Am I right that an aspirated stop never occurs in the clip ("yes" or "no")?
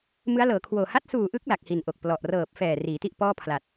no